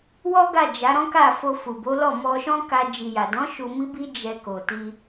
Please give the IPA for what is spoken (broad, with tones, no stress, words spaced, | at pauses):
wɔ˦ɡa˦˨ d͡ʒa˨˦ɾɔ̃˦ka˦˨ fo˧fu˨bo˨˦lɔ˦˨ mɔ˧ʃɔ̃˦ka˧ d͡ʒi˨ja˨dɔ̃˨˦ ʃu˧mi˦bi˦ d͡ʒɛ˧ ko˨ti˧